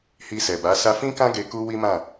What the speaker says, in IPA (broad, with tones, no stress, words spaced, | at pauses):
hi˧sɛ˨ba˨˦ sa˧fĩ˦kã˦ ɡe˧ku˦wi˦mã˦˨